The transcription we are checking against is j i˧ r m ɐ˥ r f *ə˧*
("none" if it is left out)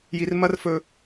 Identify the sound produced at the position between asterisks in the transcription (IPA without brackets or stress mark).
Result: ɵ˧